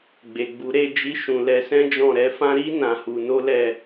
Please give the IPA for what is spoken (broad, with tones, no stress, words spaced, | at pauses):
ɡ͡be˨ɡ͡bu˨˦ ɾe˦˨d͡ʒi˧ʃũ˨ lɛ˨˦sɛ̃˦d͡ʒɔ̃˦˨ ɾɛ˨˦fã˦ ɾi˦ nã˧hu˧ no˦lɛ˦˨